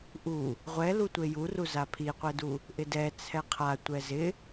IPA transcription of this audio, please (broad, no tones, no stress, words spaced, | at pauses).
ʔu | ʁʷɛlu tʷejuru zapʰiqʷɛdu | ʔɪdɛ t͡sʰɛqʰa tʷɛzɪ